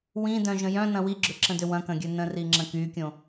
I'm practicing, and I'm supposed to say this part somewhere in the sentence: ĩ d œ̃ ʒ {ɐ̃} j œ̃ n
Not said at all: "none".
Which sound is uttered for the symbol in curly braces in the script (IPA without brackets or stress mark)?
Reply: ə̃